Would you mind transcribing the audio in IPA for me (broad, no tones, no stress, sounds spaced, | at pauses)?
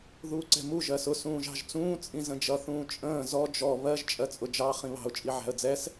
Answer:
ð uː ǀ ɛ̤ m u ʒ ɜ s ʊ s ũː ʒ ɑ̤ ʒ t͡s ũː t͡sʼ ĩ z ə̃ d͡ʒ ʌ θ ũː t͡ʃʼ ə̃ː z ɔ d͡ʒ ɔ β ɜ ʒ t͡ʃʼ ɜ t͡sʼ ʊ d͡ʒ ɑ χ ĩ β ɑ̤ ʊ̯ t͡ʃʼ i ʕ æ̤ ə̯ d͡z ɛ s